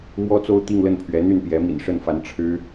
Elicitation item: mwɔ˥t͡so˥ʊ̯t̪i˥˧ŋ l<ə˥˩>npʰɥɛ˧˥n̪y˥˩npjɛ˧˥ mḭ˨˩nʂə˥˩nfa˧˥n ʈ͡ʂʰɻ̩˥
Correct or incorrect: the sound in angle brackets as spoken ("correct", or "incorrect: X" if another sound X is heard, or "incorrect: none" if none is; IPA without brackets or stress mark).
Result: correct